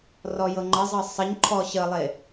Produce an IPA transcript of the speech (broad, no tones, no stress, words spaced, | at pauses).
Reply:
rɔjɤŋ͡ǃəzˤɤ sˤəɲǃʰɔ ɕəlˠe